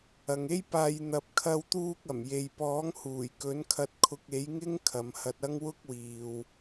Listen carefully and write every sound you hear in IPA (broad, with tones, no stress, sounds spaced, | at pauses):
ɐ˨ ŋ e˥ j p aː˧ j n̪ ɐ˨ p̚ kʰ ɐ˧ w t̪ uː˧ k̚ ɐ˨˩ m j e˨ j p ɔː˨˥ ŋ h uː˨˩ j k ɵ˨˥ n kʰ ɐ˧ t̚ kʰ ʊ˧ k̚ e˨˥ j ŋ ɪ˥ ŋ kʰ ɐ˨˧ m h ɐ˧ t̚ ɐ˥ ŋ w ʊ˥ k̚ w iː˨ w